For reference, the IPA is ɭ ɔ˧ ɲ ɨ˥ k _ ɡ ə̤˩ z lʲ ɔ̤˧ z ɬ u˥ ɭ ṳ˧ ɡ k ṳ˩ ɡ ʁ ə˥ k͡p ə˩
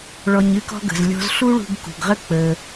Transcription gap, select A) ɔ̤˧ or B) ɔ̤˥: B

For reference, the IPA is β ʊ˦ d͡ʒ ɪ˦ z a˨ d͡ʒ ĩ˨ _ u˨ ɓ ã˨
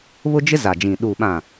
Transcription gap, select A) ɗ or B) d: A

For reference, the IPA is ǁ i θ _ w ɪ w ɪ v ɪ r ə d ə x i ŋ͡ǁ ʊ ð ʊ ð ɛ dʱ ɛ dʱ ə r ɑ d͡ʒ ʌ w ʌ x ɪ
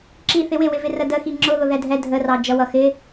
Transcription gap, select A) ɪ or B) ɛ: A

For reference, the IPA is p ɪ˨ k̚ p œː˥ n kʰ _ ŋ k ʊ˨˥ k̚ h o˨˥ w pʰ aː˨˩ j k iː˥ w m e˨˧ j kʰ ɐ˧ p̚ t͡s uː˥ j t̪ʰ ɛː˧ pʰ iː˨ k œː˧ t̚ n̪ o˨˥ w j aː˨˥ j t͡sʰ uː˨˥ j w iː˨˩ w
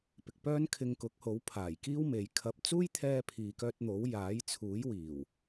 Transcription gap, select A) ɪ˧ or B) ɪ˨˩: A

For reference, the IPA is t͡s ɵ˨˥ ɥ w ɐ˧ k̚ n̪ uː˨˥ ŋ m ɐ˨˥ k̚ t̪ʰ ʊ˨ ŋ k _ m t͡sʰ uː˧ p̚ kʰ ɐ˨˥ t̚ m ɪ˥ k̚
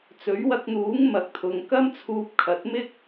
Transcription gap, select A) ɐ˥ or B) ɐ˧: A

